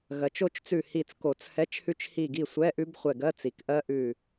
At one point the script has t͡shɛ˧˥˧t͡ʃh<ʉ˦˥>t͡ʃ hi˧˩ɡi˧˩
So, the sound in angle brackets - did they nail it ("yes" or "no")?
yes